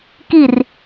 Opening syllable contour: falling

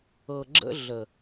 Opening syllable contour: low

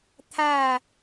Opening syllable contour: falling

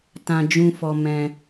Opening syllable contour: low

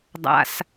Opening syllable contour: low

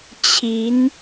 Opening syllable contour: rising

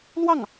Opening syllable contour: falling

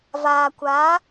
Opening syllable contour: low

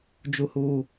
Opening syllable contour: low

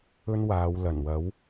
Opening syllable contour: high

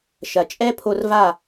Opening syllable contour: low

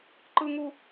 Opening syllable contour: high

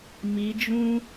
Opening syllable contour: rising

